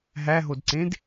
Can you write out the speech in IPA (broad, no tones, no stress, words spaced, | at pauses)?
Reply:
ɦæɦodǀẽd